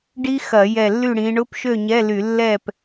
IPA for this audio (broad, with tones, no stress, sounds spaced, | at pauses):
ɖ i˦˥ x ɐ˧˩˧ j ɛ˧˩ lː y˥˨ ɽ ĩ˨˦ ɳ ʊ˧˥˧ p ʃ ø˥˨ ɲ ɛ˧˥˧ l y˧˩˧ lː ɛ˥˨ p